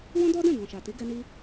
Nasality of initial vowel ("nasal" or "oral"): nasal